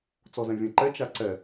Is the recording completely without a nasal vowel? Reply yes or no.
no